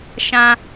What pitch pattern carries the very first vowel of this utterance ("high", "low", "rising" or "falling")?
low